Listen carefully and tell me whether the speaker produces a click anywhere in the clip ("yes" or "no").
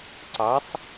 yes